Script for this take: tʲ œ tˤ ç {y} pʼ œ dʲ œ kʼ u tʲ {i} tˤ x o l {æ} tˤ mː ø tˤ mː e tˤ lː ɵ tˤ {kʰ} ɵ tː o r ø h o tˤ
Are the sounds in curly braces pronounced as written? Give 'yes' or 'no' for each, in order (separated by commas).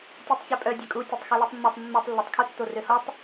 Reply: no, no, no, yes